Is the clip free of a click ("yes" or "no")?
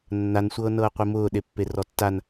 yes